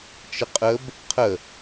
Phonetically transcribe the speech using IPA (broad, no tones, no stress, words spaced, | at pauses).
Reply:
t͡ʃəqʼəb | qʰə